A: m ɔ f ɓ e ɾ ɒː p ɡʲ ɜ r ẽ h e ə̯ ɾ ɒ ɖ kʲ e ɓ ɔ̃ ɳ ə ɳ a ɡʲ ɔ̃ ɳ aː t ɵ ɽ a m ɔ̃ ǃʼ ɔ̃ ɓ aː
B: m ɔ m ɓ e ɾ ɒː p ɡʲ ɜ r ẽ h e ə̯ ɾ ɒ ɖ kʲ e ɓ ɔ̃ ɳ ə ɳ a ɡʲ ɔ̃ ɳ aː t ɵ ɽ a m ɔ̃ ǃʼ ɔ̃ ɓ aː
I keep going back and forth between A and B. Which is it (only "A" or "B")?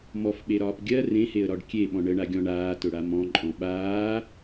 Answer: A